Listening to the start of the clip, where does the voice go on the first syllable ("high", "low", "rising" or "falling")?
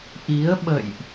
rising